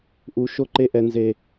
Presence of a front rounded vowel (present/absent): absent